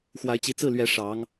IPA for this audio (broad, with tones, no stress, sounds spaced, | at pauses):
x w a˧˥ ɪ̯ t͡ɕ i˧˥ t͡s ɹ̩˥˩ l ɥ ɛ˧˥ ʂ ɑ˧˥ ŋ